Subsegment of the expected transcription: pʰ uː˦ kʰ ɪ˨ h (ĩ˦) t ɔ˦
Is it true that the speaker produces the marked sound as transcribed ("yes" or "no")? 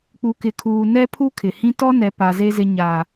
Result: yes